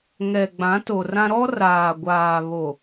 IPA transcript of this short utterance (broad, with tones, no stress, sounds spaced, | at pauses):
ŋ ɛ˨ ɡ͡b ã˨˦ t o˨ r ã˦ ɾ ɔ˦ r aː˨ ɡʷ aː˨ β o˨